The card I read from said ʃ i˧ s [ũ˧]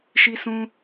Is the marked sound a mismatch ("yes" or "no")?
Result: no